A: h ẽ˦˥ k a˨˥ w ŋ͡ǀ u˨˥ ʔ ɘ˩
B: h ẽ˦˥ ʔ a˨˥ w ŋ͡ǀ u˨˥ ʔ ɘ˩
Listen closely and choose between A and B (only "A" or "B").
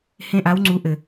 B